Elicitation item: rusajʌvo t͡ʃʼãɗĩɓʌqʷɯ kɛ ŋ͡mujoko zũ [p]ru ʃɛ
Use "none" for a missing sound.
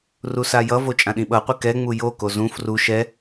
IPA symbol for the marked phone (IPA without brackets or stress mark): f